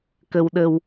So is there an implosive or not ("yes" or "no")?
yes